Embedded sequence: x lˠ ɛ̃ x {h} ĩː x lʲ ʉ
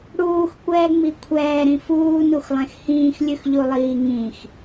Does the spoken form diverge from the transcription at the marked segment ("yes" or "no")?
no